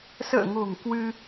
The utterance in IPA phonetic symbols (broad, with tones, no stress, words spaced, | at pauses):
sə̰ː˧˨ŋo̤˨˩ŋ kwɨ˧